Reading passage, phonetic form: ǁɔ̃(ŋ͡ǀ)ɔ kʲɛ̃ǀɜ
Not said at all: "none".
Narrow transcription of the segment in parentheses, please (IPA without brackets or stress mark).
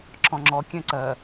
ŋ͡ǁ